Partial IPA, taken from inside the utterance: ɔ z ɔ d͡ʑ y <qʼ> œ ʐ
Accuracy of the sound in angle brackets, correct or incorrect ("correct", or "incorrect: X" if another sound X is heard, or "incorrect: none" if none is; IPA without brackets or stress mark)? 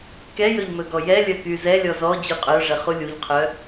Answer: correct